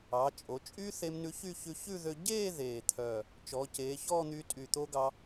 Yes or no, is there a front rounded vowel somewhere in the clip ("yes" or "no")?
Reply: yes